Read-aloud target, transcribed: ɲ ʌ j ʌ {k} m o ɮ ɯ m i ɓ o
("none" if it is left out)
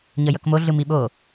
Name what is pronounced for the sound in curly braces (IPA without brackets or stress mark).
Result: k